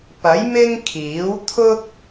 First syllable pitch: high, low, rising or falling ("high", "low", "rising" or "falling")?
rising